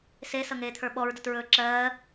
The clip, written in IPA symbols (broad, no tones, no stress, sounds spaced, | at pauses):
s e s ʌ ŋ eː t̪ʰ ə˞ ɓ ɔ ɹ d ə t ɹ ɵː ǁ ɜː